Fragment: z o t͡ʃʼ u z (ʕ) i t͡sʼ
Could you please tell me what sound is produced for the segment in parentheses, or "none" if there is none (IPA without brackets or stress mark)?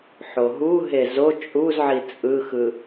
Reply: ʕ